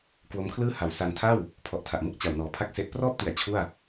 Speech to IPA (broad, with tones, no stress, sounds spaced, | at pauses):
k w o˦˥ m kʰ l ɯː˥˩ h a˩˦ w s a˧ n tʰ a˥˩ w | pʰ ɔ˨˩ ʔ tʰ a˨˩ ʔ m ɯ˥˩ k̚ t͡ɕ a˨˩ w n ɔː˨˩ pʰ a˥˩ k̚ s e˦˥ ʔ p r ɔː˥˩ p̚ t i˩˦ a̯ t͡ɕʰ u˥˩ a̯